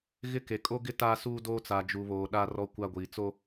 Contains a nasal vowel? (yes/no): no